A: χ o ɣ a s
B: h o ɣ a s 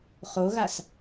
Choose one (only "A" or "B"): A